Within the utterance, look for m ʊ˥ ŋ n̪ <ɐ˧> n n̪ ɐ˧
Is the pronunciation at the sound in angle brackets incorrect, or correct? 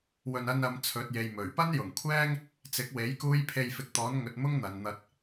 incorrect